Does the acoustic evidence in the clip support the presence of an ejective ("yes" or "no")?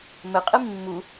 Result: yes